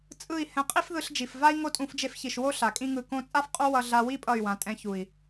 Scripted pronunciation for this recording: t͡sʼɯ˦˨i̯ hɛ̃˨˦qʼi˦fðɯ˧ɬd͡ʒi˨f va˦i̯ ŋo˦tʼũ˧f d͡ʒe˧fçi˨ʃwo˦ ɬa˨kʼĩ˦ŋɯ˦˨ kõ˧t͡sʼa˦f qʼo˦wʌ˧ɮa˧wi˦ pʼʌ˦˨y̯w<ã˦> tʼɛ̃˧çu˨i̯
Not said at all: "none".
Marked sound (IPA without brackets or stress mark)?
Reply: ã˨˦